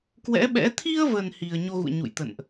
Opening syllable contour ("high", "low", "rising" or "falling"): rising